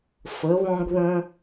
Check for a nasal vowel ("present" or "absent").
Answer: present